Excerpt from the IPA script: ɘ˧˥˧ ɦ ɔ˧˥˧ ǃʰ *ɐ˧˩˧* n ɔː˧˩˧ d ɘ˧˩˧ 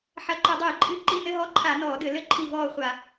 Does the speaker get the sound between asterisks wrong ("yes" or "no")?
yes